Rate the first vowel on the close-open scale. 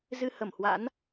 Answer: close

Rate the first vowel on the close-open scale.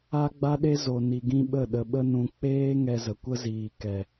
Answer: open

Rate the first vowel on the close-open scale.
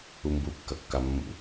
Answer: close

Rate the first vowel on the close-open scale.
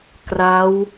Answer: open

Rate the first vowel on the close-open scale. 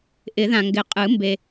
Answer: close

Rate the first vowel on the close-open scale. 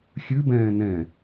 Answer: close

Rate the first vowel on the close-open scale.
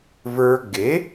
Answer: mid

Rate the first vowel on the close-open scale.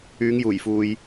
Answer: close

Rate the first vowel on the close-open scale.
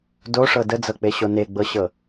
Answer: mid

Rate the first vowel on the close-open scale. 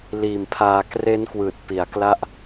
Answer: close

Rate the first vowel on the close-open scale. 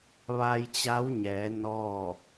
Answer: open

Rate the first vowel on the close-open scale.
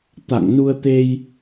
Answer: open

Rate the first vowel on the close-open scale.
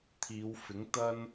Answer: close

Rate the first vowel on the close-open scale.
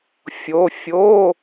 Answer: mid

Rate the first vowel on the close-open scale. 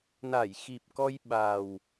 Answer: open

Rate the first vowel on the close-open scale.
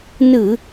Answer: close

